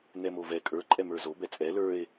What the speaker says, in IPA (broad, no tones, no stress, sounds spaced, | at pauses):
n ɛ m o v ɛ kʼ ə˞ ǃʼ ɛ m ə˞ z o b ɛ t͡sʼ ɛ l ə˞ e̯